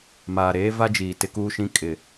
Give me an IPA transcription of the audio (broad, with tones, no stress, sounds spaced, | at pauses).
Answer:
m aː˨ ɾ eː˦ v a˦ d͡ʒ iː˨ t ɪ˦ k uː˦ ʃ ĩ˦ kʼ ɪ˨